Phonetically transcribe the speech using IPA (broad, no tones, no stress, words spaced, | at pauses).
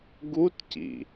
ɡutcḭ